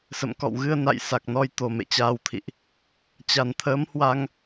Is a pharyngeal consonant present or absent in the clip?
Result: absent